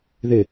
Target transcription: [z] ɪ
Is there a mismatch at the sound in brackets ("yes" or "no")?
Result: yes